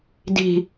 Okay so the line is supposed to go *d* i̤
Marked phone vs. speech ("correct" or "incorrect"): correct